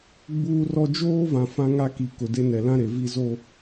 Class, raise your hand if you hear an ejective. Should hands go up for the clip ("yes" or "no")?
no